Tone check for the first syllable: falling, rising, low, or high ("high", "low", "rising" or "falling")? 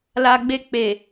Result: high